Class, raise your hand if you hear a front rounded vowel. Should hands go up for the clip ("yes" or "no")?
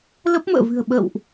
no